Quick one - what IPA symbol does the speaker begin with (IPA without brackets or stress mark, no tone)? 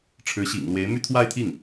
ʈ͡ʂʰ